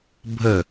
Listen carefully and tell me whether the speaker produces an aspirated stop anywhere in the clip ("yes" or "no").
no